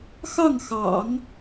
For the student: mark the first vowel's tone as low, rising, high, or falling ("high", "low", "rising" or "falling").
falling